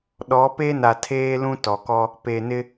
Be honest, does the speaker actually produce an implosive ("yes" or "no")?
yes